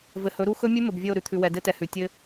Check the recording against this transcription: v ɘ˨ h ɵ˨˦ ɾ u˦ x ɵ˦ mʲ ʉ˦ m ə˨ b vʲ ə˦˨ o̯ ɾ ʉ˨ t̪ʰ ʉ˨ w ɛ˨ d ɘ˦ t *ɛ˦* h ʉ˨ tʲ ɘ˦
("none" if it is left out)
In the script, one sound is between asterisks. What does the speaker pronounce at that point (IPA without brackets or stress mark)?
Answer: ɛ˨